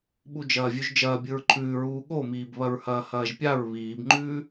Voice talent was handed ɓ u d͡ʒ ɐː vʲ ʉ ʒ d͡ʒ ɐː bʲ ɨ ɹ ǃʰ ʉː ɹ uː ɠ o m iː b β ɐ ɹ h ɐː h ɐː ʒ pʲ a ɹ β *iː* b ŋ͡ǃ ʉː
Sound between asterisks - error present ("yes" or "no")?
no